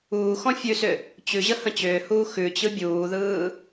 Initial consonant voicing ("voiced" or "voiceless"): voiceless